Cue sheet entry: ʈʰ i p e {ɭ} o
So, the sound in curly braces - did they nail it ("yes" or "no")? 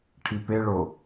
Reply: yes